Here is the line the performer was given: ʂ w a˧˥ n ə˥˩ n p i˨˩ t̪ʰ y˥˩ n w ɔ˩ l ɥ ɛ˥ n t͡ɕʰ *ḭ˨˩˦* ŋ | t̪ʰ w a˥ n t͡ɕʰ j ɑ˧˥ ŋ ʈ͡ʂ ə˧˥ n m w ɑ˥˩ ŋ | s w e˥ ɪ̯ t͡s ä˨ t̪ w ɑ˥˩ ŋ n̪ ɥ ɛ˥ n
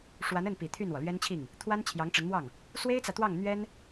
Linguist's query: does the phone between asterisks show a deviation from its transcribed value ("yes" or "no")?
yes